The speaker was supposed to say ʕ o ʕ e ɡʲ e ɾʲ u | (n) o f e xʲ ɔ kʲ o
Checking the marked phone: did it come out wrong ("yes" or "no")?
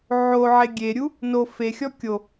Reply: no